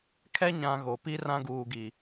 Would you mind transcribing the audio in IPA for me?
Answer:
kʰ ɛ˦ ɲ ã˨ ɣ o˨ p i˦ r ã˦ ɡ uː˨ ɡ i˨

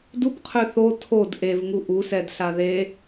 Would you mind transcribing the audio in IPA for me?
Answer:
d u p qʰ ø θ o tʰ o d ʔ e v ŋ u ʔ u s ɛ d ɬ a ð e

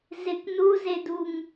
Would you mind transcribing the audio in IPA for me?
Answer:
z ɪ k n u z e d u ŋ

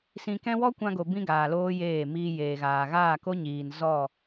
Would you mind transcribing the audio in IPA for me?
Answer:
s ĩ˧ k ɛ̃˦ w ɔ˦ kʷ ã˧ ɡ o˨ b ĩ˦ ɡ aː˨ l oː˦ j eː˦˨ m iː˧ j eː˨ ɣ aː˨ ɣ aː˦˨ k o˦ ɲ iː˨ n z ɔ˦˨

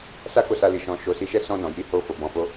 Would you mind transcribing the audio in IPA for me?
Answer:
s a˦ k o˦˨ s a˧ l i˨ ʃ ɔ̃˨ ʃ o˨˦ s i˧ ʃ ɛ˦ s ɔ̃˧ n ɔ̃˨ j i˨˦ h o˧ f o˨ b ɔ̃˨ f o˨˦

